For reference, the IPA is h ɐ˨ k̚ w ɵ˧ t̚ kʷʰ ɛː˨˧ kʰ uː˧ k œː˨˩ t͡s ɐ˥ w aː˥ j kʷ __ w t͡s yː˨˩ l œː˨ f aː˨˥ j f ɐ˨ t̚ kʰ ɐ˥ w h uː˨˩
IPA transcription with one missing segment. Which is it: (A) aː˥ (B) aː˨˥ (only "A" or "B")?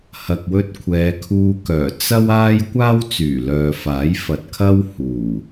A